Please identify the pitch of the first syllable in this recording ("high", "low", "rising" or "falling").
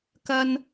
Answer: high